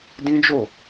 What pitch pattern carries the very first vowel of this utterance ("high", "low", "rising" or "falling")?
high